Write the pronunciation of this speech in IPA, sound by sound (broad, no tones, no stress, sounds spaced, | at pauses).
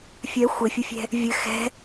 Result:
fʲ œ xʷ ɘ fʲ ə fʲ ɛ̤ | vʲ ɘ x ɛ̤